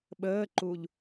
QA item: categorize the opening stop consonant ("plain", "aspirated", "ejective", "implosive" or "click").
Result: implosive